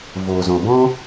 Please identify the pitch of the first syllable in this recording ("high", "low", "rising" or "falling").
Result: low